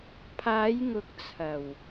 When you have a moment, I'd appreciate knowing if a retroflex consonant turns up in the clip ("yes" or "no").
no